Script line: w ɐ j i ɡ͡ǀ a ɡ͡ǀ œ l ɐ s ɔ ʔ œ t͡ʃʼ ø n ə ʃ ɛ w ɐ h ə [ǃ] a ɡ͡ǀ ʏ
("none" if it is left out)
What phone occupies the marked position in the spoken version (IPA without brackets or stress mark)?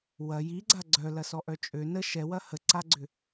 ǀ